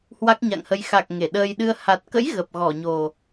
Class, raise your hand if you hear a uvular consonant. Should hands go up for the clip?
no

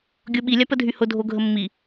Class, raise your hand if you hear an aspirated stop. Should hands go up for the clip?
no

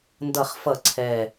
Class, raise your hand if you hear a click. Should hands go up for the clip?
yes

